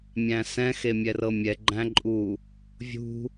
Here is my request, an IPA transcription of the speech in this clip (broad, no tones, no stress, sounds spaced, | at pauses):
mʲ æ̃ s ɛ̃ x e mʲ ɛ r ɤ mʲ ɛ ɡ͡ǃ æ̃ ǃʼ u | vʲ ṳ